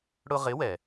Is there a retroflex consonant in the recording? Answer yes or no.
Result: yes